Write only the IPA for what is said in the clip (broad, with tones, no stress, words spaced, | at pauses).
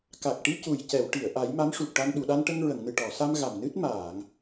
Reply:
ka˨˩k̚ʈi˧ cu˨˩j cɛ˨˩˨wʈi˨˩˨ə̯ ʔa˨˩˦jma˧˥mʂu˨˩k̚ʈa˧n ɗu˨˩˨ɗa˧nʈə˧ŋ ɹə˨˩˨ŋnɨ˨˩ʈɔ˨˩˨sa˧m ɣa˨˩mnɨ˦˥t̚ maː˨˩˨ŋ